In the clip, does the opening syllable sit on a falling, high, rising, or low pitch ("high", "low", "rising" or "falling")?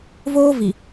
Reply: high